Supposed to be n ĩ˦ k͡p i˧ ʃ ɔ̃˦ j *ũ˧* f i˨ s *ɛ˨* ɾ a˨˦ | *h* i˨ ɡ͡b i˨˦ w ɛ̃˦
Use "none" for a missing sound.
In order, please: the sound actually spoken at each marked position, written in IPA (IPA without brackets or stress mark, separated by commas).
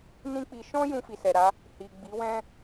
ũ˧, ɛ˨, h